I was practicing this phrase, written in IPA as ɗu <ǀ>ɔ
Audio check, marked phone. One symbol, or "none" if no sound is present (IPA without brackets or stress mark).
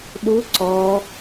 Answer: ǀ